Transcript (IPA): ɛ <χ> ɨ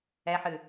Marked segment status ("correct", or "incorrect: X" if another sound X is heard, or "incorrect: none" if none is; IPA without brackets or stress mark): incorrect: ħ